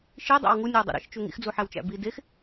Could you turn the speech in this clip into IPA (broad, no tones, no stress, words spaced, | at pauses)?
ʃidˤæ̰w ŋunʲowdˤo̰ ɾḛʃt͡ʃu ŋḭxd͡zuħæwt͡ʃæ̰ bi dex